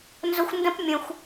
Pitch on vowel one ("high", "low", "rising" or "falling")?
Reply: high